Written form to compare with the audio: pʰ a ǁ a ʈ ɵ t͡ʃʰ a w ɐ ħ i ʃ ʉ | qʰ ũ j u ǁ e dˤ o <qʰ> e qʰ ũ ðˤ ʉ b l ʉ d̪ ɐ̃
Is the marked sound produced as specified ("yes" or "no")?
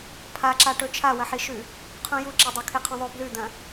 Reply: no